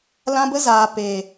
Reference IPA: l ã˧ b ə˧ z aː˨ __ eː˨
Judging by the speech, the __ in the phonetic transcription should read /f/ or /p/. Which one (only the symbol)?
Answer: p